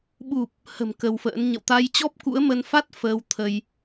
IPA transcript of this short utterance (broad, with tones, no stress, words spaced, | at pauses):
ɓu˨˩p̚ | hə̤˨˩m kə˧wfə̰ː˧˥n ɲə̰˧˨wt̪a˧jt͡ɕɔ˦˥p̚ kṵ˧˥ə̯mə˧n fa˦˥t̚ fəː˧wt̪ʰə˧j